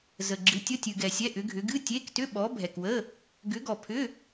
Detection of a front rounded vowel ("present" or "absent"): present